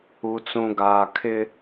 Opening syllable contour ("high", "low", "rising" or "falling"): low